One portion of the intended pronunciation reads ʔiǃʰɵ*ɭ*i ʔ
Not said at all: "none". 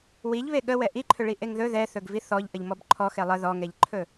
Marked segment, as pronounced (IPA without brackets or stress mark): ɭ